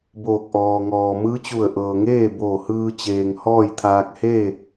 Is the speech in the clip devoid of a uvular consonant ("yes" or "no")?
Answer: yes